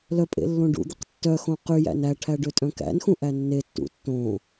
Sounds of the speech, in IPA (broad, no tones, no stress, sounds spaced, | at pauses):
l œ pʼ ḛ lː õ ɖ ṵ d̪ e q tː œ x õ q y j æ̰ n æ ʈʰ æ ɖ ø tʼ œ̃ k æ̰ n x ũ ʔ æ nː e tː ṵ tː õ